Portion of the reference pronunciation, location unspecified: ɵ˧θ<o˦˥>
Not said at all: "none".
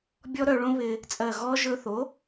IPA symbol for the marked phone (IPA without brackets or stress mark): o˩˥